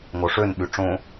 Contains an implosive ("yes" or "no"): yes